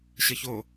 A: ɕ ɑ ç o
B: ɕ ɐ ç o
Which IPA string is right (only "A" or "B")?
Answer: B